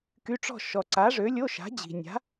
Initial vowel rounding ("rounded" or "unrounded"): rounded